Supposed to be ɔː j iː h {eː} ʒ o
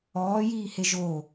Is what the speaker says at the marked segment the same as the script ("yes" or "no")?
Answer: no